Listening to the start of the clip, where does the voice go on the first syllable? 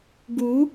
rising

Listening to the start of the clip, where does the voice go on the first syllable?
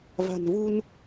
low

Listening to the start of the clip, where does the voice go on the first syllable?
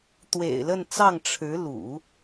low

